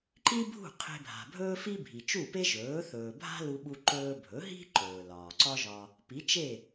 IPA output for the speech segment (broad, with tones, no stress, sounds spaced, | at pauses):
ǃ i˥ bʱ ṳ˥˩ qʰ e̤˧ bʱ a̤˩ bʱ ɵː˥ f i˥ bʱ i˩ t͡ʃ u˥˩ p e˥ ʒ ɵː˩˥ θ ɵː˩ bʱ a̤˥ l u˧ ɓ u˧ ǃ ɵː˧ bʱ ɵ˩˥ ɦ i̤˥ ǃ ɵː˩ l ɒː˩ ǀ ɒ˥ ʒ ɒ˧ | p i˩˥ t͡ʃ e˥˩